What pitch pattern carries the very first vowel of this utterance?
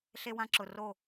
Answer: high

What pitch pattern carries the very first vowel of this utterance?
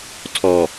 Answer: low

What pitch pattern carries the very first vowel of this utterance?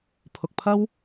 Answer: low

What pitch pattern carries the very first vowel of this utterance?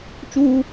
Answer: high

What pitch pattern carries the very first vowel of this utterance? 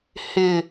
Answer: low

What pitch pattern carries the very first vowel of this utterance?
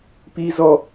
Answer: high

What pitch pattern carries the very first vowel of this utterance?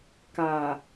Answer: low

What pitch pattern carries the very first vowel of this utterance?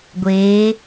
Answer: rising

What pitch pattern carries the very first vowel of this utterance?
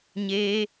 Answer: high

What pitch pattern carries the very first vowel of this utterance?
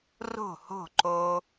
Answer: falling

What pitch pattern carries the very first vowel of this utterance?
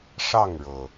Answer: falling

